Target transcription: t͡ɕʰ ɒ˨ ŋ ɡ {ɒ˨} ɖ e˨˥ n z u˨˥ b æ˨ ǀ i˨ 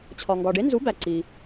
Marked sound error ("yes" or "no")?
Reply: no